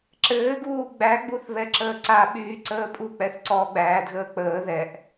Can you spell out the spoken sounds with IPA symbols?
ǁ ɘː ɡ uː ɡ͡b æ ɡ͡b u θ β ɛ ǁ əː ǀ a ɓ yː ǀ əː pʼ u k͡p ɛ θ ǀ ɔː ɡ͡b æː d ɣ əː k͡p əː ð ɛ ʔ

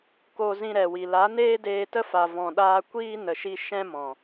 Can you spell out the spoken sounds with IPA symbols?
k o˧ z ĩ˧ ɾ ɛ˨ w i˨ l a˨˦ n eː˦ d eː˧ t ə˦ f a˨ v ɔ̃˨ ɗ aː˧ kʷ iː˦ n ə˧ ʃ i˦ ʃ ɛ̃˦ m ɔ̃˨

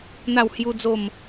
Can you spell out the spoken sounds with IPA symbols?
n̪ a˥˧ w h j u˦ d͡z o˥˧ m

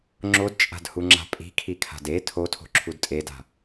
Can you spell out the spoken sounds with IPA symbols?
ŋ͡ǁ o d t͡ʃʼ a̤ d h u ŋ͡ǁ a̤ pʼ i̤ kʰ i kʰ a̤ d e tʰ o tʰ o̤ ǁʰ u d tʼ e d a̤

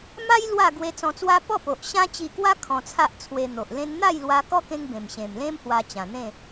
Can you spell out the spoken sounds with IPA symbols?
m a˦ j l w a˥˧ ɡ w e˧ t͡s ɔ̃˧ t͡s w a˦ p ɔ˥˧ p o˨ ʔ ɕ ã˦ t͡ɕ i˧ k w a˦ kʰ ɔ̃˧ t͡sʰ a˦ ʔ t͡sʰ w e˧ n̪ o˨ ʔ l ẽ˧ n n̪ a˥˧ j l w a˧ k ɔ˦ k ẽ˧ ŋ b ẽ˨˩ m ɕ ẽ˨˩ m l ẽ˦ m h w a˧ t͡ɕ ã˨˩ n̪ ẽ˥˧

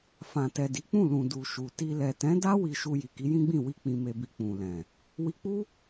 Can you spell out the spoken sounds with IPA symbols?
f ã˨ t ɛ˨ d i˨˦ k͡p ũ˦˨ l ũ˨ d u˨ ʃ u˨ t i˧ l ɛ˨ t ɛ̃˨˦ d a˦ w i˧ ʃ u˧ j i˨ k i˨˦ j ĩ˦ ɡ͡b ĩ˦˨ w i˧ k͡p ĩ˨ m e˨ b i˨ k͡p ũ˨ l ɛ̃˨ | w i˧ k͡p u˦

